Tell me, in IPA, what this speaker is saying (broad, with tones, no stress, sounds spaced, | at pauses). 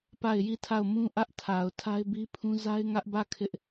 p a˦˨ ɪ̯ j i˦˨ tʰ a˦˨ ʊ̯ m ũ˦ ʔ ä˦ ʔ tʰ a˨ ʊ̯ tʰ a˦ ɪ̯ b i˦ pʰ ũ˦ z a˦ ɪ̯ ŋ ä˦ ʔ b ä˦˨ kʰ ɪ˦ ʔ